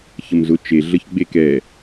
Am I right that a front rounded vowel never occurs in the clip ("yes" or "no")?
yes